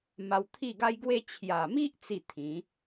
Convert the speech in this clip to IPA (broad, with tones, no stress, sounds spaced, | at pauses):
m a˧ w t̪ʰ i˥˧ ɡ a˦ j ɡ w e˦ t͡ɕʰ j a˨˩ m i˦ ʔ t͡s i˥˧ t̪ʰ ĩ˨˦